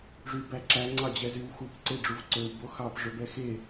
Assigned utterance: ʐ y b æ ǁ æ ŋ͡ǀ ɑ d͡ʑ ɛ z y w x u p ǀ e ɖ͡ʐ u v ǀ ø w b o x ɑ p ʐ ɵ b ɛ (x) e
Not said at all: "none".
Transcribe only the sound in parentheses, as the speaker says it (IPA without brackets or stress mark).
x